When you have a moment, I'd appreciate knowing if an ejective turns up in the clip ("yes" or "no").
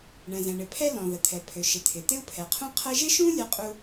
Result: yes